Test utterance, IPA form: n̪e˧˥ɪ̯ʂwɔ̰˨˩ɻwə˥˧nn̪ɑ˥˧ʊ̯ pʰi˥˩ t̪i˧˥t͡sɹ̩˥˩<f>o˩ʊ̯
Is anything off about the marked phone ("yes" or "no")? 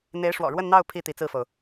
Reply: no